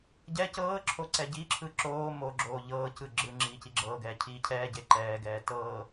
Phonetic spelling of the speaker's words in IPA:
ɟ ɛ c ɤː ǁʰ o ǀ ɛ ɟ i ǁʰ ɯ ǁ oː m o ɡ͡ǁ oː ʎ ɤː c ɯ ɡ͡ǁ ɯ ŋ͡ǁ iː c i ɡ͡ǁ ɤː ɡ ɛː cʰ iː cʰ ɛː ɟ e ǃ ɛː ɡ ɛː t ɤː

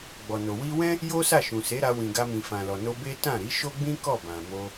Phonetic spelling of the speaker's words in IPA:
ɡ͡b ɔ˨ n o˨ w i˧ w ɛ̃˦ | j o˦ s a˦˨ ʃ ũ˨ s e˨˦ ɾ a˧ w ĩ˨ ɡ a˧ m ĩ˨ f ã˨ l ɔ˨ n o˧ b e˦ t ã˦˨ ɾ i˨˦ ʃ o˦ ɡ͡b ĩ˦ k ɔ˦˨ b ã˨ m o˧

